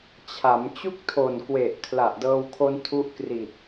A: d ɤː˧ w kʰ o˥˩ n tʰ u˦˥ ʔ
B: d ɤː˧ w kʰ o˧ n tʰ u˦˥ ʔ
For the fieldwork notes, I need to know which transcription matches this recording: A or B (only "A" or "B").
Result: B